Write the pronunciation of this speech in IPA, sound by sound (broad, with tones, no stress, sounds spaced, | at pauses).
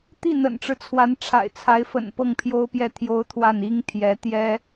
t̪ i˥˩ n̪ ə̰˨˩ n ʈ͡ʂ ɻ̩˦ t͡sʰ w a˧˥ n ʈ͡ʂʰ a̰˨˩ ɪ̯ t͡sʰ a˧˥ ɪ̯ f ə̰˨˩ n p ɤ˥˩ ŋ pʰ j o˥ ʊ̯ p j ɛ˥˩ t̪ʰ j o˥ ʊ̯ t̪ʰ w a˥˩ n i˥ ŋ t̪ʰ j ɛ˧˥ t̪ j ɛ˥